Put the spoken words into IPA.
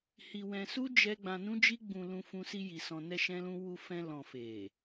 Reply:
h i˧ w ɛ̃˧ s u˦ d͡ʒ ɛ˦ ɡ͡b ã˧ n ũ˦ d͡ʒ i˦ ɡ͡b ũ˧ l ũ˧ f ũ˧ s i˧ j i˨ s ɔ̃˧ n ɛ˧ ʃ ɛ̃˦ l ũ˦ w u˧ f ɛ̃˧ l ɔ̃˨ f e˨

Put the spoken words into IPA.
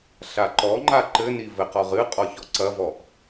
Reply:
ɬ a ǃ ɔ ŋ͡ǃ a ǃ ɘ n i v ɘ q ɔ ʁ ɨ qʼ ɔ ç ɔ ǀ ɐ v ɔ ʔ

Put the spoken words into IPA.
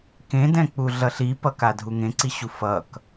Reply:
k ẽ d ɛ̃ k͡p u ɮ ʌ ɬ i p ʌ k a dʱ u ŋ ẽ ǀ i ɕ u f ʌ k

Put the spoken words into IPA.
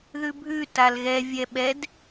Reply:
ð ʉ bʱ ʉ t a l ɣ ɛ vʲ ɛ ɓ ɛ d

